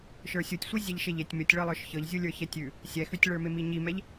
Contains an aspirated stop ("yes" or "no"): no